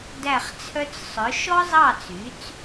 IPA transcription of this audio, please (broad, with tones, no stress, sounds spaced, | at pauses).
d æ˥˩ χ t͡sʰ œ˥ t͡s sˤ œ˩˥ ʃ ɔ˥ zˤ ɑ˥˩ t͡s y˩˥ t͡s